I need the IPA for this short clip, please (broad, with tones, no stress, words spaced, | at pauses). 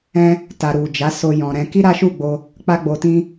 ɛ̃˦ | ta˨ɾu˨d͡ʒa˨˦ so˧jɔ̃˨ ɾɛ̃˧ ki˦ɾa˦ʃu˦˨ɡ͡bo˧ | k͡pa˦ɡ͡bo˧tĩ˦